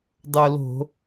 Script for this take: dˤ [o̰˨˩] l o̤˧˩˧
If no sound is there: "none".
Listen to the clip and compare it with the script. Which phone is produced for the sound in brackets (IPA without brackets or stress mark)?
o˨˩